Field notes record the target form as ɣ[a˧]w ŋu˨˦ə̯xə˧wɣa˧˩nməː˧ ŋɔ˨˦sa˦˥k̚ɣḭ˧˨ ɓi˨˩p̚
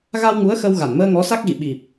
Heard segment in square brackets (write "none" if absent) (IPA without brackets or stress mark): a˧